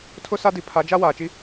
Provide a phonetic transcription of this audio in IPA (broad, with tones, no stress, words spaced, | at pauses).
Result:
tʰʊ˦sa˦di˨ pʰa˨˦d͡ʒa˦ waː˨t͡ʃi˦